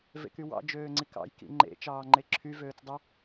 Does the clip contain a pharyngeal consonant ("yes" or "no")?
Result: no